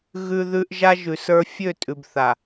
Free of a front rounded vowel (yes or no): no